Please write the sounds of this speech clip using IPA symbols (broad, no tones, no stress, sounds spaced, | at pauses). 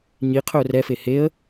ɲ i qʰ ɵ ʊ̯ r ɛ f e h e ə̯